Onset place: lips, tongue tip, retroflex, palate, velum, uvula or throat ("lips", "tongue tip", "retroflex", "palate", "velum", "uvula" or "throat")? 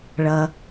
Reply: retroflex